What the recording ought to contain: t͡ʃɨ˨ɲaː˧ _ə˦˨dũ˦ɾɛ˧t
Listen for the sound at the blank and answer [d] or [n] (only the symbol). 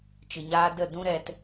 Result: d